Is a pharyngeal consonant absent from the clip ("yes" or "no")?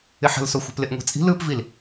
no